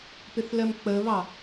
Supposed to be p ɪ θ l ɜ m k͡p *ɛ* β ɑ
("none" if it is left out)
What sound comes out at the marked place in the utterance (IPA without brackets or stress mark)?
ə